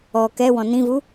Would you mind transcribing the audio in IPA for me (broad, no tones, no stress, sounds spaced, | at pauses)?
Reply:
ɔ k ɛ w ɔ̃ n ĩ v u